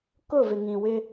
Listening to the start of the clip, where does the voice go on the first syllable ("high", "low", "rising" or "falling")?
falling